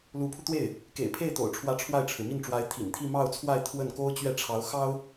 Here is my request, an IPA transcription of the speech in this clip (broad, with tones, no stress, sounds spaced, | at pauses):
l u˧˥ pʰ u˧ t̪ w e˥˩ ɪ̯ | k ḛ˨˩ ɪ̯ pʰ e˥˩ ɪ̯ t̪ o̰˨˩ ʊ̯ ʈ͡ʂʰ w ä˧˥ ʈ͡ʂʰ w a˥˩ ɪ̯ ʈ͡ʂʰ ɻ̩˩ m i˥˩ n ʈ͡ʂ w a˧˥ ɪ̯ t̪ʰ ḭ˨˩ n t̪ʰ i˥˧ m ɑ˥˧ ʊ̯ t͡sʰ w a˥˧ ɪ̯ t̪ʰ w ə˥˩ n k o˥ ʊ̯ t͡ɕ ɥ ɛ˥˩ ʈ͡ʂʰ ɑ˧˥ ʊ̯ x ɑ˥ ʊ̯